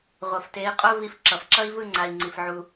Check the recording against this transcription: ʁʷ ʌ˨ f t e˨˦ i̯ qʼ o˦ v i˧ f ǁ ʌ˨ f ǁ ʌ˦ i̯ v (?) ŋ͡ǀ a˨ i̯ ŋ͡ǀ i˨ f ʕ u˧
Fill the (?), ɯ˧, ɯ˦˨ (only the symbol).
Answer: ɯ˦˨